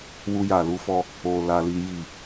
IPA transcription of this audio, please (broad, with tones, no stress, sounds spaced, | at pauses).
w u˦ j a˦˨ l u˨˦ f ɔ˦ | o˦ l a˦ l i˦ j i˦˨